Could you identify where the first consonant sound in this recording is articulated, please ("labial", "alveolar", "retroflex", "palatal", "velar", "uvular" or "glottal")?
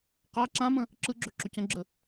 uvular